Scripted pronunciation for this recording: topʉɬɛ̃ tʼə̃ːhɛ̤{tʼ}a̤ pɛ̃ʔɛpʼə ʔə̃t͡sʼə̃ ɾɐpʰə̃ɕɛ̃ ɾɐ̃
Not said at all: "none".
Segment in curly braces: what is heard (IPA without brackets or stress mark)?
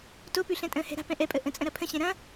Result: ɾ